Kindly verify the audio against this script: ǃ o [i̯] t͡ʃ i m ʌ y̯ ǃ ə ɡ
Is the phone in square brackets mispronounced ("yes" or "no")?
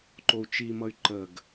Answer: yes